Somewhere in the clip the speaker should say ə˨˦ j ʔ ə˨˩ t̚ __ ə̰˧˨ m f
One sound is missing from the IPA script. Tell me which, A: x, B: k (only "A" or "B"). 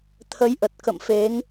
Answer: B